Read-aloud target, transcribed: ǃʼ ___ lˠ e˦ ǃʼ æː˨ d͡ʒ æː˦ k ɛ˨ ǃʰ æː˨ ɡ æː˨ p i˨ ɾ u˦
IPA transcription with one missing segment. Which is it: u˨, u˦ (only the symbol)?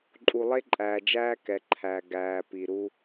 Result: u˨